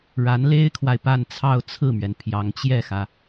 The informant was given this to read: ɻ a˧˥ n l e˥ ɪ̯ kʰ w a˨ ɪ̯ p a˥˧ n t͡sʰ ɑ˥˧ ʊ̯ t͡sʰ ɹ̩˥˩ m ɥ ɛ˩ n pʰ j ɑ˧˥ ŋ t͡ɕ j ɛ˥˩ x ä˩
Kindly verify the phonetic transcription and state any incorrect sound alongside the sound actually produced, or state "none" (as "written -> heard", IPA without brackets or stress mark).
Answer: none